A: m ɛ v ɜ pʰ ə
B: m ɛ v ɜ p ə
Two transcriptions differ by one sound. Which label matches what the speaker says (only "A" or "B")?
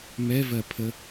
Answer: A